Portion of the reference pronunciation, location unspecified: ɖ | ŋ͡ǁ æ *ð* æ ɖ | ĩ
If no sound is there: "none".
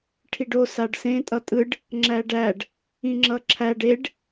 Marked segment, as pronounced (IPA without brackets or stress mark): ɖ